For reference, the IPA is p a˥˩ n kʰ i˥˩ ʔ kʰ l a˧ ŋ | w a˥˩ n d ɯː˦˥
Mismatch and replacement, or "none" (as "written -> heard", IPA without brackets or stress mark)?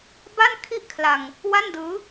p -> b